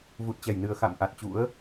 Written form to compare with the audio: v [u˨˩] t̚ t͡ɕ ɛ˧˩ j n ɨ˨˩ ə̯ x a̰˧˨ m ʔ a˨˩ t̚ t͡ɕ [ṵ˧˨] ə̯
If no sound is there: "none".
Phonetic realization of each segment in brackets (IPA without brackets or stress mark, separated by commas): u˨˩, ṵ˧˥